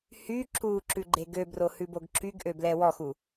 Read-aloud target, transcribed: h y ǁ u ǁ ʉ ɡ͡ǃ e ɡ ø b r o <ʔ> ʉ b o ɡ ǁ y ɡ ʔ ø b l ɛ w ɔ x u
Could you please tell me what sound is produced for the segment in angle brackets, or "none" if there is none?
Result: h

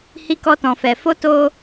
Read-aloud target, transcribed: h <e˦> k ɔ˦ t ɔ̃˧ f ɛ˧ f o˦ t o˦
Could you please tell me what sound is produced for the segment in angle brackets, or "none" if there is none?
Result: i˦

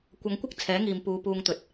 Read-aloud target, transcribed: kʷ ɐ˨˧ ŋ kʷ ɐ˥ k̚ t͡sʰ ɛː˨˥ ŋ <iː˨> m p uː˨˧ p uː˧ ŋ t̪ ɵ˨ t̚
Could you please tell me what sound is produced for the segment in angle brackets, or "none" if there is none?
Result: iː˨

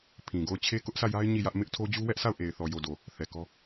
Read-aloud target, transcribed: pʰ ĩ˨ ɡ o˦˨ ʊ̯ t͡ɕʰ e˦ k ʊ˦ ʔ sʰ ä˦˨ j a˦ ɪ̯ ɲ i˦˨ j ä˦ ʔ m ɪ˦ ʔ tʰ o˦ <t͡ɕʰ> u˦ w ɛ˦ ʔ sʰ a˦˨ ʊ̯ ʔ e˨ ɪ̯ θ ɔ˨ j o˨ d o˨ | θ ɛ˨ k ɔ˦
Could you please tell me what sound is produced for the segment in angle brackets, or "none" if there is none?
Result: d͡ʑ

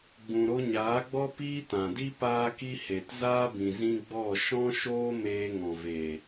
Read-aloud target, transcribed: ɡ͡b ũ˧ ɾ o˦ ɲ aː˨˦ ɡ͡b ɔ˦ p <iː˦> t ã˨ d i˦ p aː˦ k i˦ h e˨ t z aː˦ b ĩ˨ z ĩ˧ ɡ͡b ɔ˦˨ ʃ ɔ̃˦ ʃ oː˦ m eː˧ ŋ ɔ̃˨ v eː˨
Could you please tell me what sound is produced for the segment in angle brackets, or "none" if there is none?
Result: iː˦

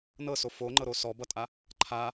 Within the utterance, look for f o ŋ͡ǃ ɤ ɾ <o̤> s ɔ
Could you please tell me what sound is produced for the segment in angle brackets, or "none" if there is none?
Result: o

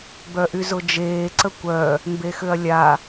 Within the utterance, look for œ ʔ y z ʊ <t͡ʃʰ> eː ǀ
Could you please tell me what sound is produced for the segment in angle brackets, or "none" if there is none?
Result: d͡ʒ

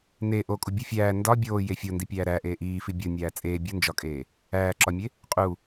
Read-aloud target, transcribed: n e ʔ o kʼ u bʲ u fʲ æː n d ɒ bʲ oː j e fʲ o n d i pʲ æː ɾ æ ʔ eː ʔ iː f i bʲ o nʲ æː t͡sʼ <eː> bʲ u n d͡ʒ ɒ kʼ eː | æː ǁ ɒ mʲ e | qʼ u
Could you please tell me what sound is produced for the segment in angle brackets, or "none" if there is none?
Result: eː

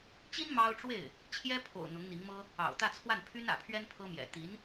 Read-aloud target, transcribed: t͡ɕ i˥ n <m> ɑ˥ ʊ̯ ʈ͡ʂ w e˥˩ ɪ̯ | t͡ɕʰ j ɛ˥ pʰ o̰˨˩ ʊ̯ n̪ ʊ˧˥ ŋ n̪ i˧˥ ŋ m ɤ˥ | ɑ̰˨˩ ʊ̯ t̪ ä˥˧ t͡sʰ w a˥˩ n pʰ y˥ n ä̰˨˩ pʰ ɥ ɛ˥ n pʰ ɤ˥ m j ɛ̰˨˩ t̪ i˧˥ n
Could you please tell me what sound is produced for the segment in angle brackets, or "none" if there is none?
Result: m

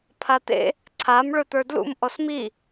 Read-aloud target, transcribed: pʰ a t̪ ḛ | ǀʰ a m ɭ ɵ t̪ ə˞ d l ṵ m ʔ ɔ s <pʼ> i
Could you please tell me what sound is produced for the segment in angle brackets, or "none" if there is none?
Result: m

